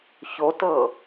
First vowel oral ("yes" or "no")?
yes